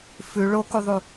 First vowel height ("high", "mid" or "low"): high